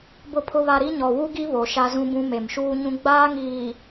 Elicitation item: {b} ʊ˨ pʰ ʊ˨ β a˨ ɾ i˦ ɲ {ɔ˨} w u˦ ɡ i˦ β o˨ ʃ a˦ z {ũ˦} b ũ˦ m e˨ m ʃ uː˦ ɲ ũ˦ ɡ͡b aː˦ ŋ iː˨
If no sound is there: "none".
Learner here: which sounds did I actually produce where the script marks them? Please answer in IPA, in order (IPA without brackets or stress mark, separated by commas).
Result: b, ɔ˨, ũ˦